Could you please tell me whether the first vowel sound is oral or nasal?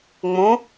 nasal